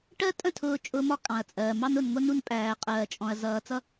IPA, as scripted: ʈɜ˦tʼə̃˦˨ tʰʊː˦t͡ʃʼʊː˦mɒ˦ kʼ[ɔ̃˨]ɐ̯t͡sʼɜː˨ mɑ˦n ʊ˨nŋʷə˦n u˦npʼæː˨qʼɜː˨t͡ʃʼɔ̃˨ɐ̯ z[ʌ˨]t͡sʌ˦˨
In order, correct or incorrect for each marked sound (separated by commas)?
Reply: incorrect, incorrect